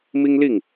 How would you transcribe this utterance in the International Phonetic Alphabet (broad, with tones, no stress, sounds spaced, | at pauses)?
m i˦ ŋ l i˥˨ ŋ